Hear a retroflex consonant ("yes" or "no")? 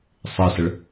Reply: yes